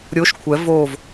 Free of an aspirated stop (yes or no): no